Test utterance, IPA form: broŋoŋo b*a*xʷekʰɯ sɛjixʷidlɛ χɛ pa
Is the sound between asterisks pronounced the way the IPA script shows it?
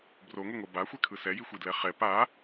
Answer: yes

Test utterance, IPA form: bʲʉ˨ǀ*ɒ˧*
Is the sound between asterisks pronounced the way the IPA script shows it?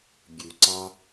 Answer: no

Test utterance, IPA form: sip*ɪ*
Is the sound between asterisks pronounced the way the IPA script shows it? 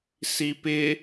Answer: yes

